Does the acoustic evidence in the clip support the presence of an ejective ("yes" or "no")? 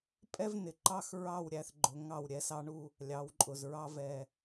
yes